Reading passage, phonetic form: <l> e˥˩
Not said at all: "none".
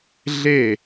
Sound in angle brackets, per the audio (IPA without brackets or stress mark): ɮ